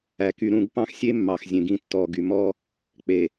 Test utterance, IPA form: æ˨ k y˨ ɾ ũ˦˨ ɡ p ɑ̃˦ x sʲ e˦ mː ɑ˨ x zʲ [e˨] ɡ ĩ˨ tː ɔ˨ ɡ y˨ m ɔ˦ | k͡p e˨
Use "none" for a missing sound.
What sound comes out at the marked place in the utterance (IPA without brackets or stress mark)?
ẽ˨